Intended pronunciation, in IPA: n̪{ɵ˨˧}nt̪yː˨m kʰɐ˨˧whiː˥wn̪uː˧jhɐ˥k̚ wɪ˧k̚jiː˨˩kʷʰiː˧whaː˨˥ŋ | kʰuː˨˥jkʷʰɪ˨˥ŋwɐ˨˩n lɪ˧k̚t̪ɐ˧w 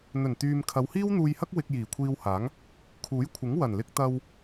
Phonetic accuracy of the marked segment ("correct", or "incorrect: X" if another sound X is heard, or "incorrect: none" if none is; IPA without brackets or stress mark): incorrect: ɵ˨˩